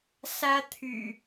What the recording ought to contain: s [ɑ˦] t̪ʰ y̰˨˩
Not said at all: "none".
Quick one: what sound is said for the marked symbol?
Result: ä˦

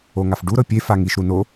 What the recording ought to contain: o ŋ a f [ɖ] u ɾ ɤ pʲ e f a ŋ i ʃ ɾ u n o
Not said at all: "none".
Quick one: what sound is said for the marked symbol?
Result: ɖ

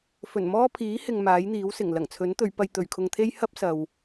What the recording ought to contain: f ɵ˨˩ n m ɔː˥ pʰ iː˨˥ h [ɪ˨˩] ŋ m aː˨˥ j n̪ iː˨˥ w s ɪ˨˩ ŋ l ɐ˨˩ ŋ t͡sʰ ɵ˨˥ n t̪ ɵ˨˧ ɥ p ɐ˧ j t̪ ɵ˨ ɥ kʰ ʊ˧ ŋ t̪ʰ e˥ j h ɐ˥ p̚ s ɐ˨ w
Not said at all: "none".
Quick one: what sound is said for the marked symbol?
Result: ɪ˨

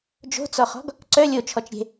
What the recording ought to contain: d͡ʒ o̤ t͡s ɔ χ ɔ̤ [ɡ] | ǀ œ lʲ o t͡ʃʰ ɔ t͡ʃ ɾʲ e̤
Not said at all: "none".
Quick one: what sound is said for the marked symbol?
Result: ɡ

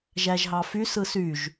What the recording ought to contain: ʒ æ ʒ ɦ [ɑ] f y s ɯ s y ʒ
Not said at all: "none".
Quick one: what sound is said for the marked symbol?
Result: ɑ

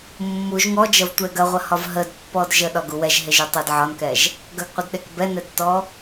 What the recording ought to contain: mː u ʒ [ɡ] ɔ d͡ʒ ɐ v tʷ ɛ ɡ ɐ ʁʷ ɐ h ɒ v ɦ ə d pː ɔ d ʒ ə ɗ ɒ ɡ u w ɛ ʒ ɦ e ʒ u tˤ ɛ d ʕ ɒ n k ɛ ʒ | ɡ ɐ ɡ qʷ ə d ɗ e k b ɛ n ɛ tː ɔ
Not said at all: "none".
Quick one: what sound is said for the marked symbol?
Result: ŋ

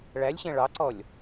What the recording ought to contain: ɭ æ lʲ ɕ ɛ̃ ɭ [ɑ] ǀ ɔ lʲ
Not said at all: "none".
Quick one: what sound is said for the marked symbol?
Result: ɑ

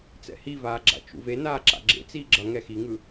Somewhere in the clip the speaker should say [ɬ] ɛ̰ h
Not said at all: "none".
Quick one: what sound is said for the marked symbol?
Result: t͡s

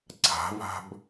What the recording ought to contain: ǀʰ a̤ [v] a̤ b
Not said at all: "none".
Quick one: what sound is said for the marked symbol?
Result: v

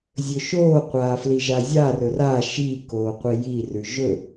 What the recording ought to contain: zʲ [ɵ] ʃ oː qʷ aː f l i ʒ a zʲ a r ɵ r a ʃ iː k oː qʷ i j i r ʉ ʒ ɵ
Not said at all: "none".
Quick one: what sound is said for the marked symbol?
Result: ɵ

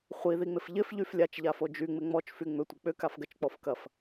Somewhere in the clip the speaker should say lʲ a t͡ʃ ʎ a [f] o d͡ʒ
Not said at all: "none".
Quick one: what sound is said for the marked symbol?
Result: f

